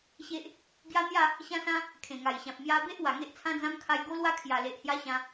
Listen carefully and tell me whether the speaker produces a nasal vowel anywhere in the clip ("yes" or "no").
yes